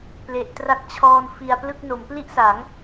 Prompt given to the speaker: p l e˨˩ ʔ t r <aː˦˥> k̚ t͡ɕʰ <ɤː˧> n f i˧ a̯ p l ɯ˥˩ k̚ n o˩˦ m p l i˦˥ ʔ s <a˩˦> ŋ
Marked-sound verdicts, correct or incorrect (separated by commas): incorrect, incorrect, correct